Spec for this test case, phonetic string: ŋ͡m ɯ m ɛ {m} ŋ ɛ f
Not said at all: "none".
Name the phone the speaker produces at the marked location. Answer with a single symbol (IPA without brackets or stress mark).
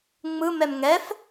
m